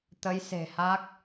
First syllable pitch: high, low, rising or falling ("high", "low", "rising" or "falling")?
rising